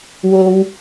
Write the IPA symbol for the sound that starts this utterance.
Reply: w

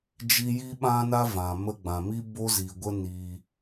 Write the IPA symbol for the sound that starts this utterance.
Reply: d͡ʒ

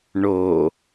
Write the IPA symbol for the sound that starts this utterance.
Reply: ɳ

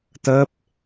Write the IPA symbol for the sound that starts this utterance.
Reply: t̪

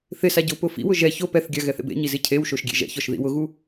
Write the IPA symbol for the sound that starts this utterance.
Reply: θ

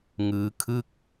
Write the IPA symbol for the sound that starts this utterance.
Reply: ŋ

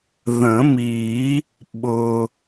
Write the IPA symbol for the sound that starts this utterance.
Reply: ð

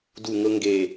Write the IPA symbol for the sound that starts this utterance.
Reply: d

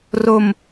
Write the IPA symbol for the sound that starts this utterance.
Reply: r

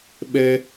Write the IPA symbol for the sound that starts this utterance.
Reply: ɓ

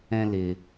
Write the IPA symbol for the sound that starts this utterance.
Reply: ɛ̃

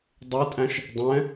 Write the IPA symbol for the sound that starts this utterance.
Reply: dˤ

